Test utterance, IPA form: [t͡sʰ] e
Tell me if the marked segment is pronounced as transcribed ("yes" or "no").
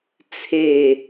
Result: yes